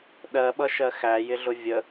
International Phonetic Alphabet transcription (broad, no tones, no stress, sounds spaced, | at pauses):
ɗ ɜ ɓ ʌ ʃ ɜ x æ j ɪ ɮ ʊ vʲ ə